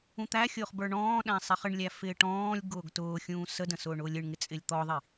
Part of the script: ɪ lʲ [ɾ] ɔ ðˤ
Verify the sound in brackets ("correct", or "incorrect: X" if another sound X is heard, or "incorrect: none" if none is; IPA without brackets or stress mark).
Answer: incorrect: t̪